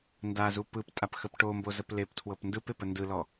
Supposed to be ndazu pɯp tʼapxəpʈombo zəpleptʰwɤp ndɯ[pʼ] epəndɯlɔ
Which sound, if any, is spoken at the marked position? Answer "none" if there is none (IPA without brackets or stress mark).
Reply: p